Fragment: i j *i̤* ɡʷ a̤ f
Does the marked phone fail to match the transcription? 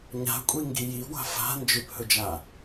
yes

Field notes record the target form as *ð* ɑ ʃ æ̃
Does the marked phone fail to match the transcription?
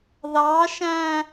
no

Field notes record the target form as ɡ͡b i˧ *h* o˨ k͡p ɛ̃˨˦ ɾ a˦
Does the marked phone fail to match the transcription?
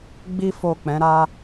yes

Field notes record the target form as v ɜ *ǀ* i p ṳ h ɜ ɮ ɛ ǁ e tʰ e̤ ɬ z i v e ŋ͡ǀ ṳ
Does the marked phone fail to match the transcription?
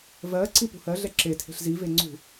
no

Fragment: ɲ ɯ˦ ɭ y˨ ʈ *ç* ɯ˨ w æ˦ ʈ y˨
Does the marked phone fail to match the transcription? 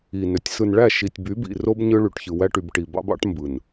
no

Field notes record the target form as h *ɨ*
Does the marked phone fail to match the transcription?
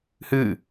no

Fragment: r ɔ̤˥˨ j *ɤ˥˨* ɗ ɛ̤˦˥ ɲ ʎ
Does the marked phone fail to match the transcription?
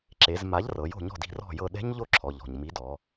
no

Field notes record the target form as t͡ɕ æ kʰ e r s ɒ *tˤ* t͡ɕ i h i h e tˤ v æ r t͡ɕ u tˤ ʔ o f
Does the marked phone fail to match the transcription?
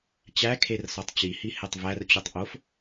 no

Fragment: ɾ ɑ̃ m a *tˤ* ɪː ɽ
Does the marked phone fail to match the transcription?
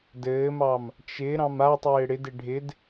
no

